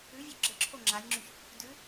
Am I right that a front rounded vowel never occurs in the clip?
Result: no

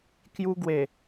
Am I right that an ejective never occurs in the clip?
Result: yes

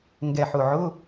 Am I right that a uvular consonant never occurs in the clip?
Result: yes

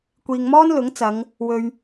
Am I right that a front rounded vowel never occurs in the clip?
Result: yes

